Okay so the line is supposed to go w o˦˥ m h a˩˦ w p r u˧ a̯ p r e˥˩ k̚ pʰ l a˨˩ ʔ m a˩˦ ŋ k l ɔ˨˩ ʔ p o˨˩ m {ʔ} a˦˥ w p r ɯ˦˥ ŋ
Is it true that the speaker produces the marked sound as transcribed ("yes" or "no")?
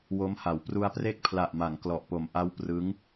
yes